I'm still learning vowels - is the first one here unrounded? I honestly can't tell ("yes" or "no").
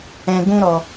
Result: yes